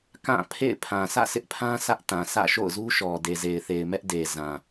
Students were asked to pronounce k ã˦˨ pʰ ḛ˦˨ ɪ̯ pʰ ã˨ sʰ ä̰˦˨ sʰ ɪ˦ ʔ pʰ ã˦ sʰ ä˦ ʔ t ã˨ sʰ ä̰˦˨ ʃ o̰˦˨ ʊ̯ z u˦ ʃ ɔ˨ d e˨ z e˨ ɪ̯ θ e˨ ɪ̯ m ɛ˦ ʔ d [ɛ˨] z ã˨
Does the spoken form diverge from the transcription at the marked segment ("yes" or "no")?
yes